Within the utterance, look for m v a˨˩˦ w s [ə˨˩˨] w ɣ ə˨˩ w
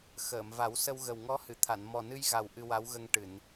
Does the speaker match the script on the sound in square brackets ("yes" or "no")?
no